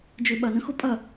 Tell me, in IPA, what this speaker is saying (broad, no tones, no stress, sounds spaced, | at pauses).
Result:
d͡ʒ ø ɓ ɐ n ə̃ x ʊ pʼ ɐ